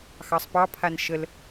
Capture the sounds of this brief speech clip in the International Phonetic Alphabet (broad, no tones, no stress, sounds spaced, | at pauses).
x ɑ sˤ p ɑ pʰ a n ʃ ə l